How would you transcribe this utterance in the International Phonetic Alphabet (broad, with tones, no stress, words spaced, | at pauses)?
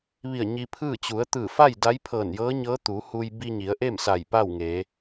ʋi˧˩ə̯ ɲi˧pʰɯː˥˨ t͡ɕu˩˧ə̯ t̪ɯː˧˩fa˥˨j da˧˥jpʰɤː˧˩njɤː˧˥ɲɤː˧˥ t̪u˩˧hu˧j bi˧ɲi˩˧ə̯ʔe˥˨m sa˧˩jpa˥˨wŋe˩˧